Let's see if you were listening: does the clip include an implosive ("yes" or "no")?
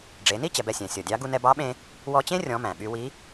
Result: yes